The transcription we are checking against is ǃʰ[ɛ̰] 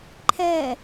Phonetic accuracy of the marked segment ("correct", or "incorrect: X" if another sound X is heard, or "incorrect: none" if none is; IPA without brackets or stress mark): incorrect: ɛ